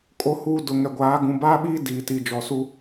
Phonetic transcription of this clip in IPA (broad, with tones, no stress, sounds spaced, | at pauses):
kʼ o˨ h uː˨ d ʊ˨ ŋ ɛ˨ ɡʷ aː˨˦ ɡ ũ˨ b aː˦ ɓ iː˦ d iː˨ t i˨ d͡ʒ ɔ˨ s u˦